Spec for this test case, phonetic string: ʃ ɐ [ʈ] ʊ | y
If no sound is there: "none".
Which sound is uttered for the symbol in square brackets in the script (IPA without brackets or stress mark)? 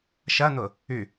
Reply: n̪